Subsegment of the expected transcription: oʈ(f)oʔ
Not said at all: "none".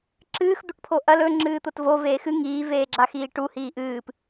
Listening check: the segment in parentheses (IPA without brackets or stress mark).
pʰ